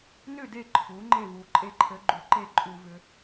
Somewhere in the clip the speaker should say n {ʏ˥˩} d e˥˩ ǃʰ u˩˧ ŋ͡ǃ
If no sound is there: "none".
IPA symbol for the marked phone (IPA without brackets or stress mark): ʏ˥˩